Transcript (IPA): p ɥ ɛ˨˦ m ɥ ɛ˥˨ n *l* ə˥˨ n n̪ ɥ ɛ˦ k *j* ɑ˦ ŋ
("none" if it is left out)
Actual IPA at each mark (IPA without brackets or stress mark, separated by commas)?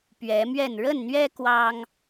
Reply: ɻ, w